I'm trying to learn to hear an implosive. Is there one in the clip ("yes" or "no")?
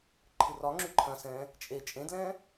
no